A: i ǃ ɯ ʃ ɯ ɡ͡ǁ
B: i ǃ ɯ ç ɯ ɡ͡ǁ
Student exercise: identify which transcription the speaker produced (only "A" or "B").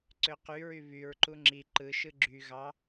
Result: A